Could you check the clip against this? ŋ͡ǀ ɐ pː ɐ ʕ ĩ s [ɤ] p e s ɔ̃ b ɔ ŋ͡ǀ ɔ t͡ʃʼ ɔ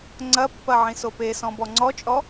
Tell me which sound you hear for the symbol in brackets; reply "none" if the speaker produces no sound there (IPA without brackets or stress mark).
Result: o